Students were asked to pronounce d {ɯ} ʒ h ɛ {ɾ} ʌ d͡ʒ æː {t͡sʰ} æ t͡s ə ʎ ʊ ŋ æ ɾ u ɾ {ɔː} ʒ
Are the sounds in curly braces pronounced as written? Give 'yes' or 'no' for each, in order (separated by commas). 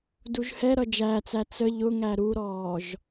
no, yes, no, yes